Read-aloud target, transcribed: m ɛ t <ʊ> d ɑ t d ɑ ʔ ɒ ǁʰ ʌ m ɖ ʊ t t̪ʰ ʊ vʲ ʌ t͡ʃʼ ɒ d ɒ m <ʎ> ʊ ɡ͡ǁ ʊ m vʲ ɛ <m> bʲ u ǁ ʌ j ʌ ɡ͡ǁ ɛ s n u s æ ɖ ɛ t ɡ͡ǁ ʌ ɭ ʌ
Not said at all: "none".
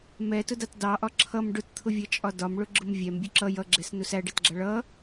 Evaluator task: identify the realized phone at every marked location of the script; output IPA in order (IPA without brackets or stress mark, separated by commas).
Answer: ʊ, ɭ, m